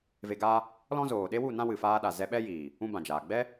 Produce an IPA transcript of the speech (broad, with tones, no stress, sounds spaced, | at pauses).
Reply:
v e˧ ɡ aː˦ | l ɔ̃˦ z oː˨ ɗ e˦ w u˦˨ n ã˦ w ɨ˨ f aː˧ ɗ a˨ z ɛ˧ ɓ ɛ˦ j iː˨ | ũ˧ b ã˨ d͡ʒ aː˨ ɡ͡b ɛ˦